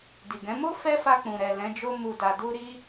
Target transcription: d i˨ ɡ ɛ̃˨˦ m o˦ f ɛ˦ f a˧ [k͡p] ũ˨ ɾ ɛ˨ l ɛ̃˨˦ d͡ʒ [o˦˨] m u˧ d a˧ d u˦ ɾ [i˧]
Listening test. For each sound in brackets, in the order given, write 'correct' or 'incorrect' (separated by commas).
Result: correct, incorrect, incorrect